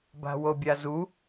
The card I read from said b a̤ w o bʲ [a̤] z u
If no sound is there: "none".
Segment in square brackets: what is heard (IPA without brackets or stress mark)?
a